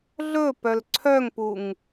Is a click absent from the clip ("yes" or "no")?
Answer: no